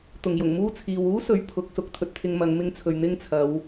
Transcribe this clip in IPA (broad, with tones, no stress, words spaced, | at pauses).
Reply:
t̪ʊ˨˩ŋjʊ˨˩ŋmuː˥t͡sʰiː˨w uː˥ sɵ˧ɥ pʰʊ˨˥k̚ sʊ˨˥k̚t̪ʰɵ˨t̚t̪ʰɪ˧ŋmɐ˨˧ŋ mɪ˧ŋ t͡sʰɵ˨ɥ n̪ɪ˥ŋ t͡sʰɐ˨˧w